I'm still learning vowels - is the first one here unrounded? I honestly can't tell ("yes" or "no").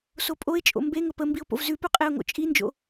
no